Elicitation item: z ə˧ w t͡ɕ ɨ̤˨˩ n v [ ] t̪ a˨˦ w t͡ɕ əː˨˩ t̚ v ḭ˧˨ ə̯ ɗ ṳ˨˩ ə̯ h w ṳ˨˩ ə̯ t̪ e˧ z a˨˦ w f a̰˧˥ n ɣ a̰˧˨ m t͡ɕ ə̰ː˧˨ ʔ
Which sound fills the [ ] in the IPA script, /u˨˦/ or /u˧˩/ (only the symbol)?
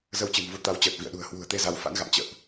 u˨˦